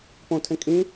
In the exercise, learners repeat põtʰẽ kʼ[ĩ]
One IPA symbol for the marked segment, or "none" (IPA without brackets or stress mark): ĩ